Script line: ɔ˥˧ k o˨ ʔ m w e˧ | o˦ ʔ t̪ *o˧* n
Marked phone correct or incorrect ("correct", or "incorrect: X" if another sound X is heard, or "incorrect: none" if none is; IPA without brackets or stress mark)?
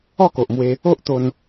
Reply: correct